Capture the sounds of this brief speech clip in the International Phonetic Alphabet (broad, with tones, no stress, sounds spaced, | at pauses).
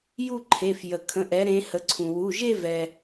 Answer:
j u˥˧ ǃʰ e˩˧˩ f j ə˩ kʰ ə̃˩˧˩ ʔ ɛ˩˧ ɾ ẽ˩˧ h ə˩˧ ǀʰ ũ˩ w u˩˧˩ ʒ e˥˧ v ɛ˩